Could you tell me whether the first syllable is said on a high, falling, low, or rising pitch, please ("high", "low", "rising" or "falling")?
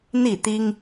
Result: falling